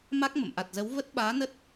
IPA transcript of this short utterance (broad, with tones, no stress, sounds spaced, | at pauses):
m a˦˥ k̚ m ə̰˧˨ m ʔ a˨˩ t̚ z ə˨˦ w v ə˦˥ t̚ ɓ aː˨˦ n ə˦˥ t̚